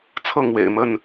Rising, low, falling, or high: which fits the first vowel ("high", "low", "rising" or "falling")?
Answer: falling